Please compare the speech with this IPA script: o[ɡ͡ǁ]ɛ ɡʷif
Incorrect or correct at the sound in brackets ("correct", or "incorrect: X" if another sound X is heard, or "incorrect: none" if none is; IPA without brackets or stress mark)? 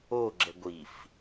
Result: correct